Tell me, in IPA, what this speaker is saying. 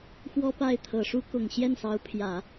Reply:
xwɔ˥pa˥˩ɪ̯t̪ʰɤ˨˩ʂu˥ kʊ˨˩ŋ ɕjɛ˥˩nsɑ˧˥ʊ̯pʰjä˨˩˦

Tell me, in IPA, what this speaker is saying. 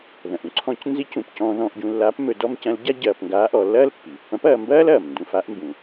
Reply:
ðɐ̃˩ʔũ˧˥ǀʰɔ̃˧˥c nzi˧˥cũ˩pcɔ̃ː˧ ðɔ̃ː˧ʔɟũ˧lːaː˧˥p mɵ˧ dɔ˥mcɐ̃˧˥l ɟa˥ ɟɐː˧pŋɡaː˧˥ʔɔ˩˧lːɐː˥l pːi˩ pːɐ̃˧˥pɐː˧mbɐː˥l ɐː˩m ndũ˧fa˧˥ʔmbũ˩

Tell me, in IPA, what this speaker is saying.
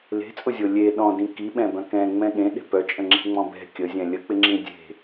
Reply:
le̤t͡sʼʊzʲo lʲe ɗɔ̃dĩ kiɓɛ̃bœ̃ kɛ̃ŋ͡mɛ̃ ɠẽɗe̤ pœt͡ʃʼə̃ŋ͡ǁe̤ŋ͡mɔ̃ bɛ̤ kʲəzʲɛ̃ lʲək͡pɪŋ͡ǁĩ dʲe̤

